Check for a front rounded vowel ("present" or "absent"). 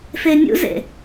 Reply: absent